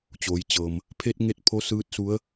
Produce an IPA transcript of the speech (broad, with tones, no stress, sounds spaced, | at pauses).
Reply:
t͡ɕ oː˩˧ j t͡ɕ ɤː˩ m | pʰ e˧ t̚ ŋ e˧ t̚ pʰ o˧˥ s ɯː˧˥ t̚ s u˧˥ ə̯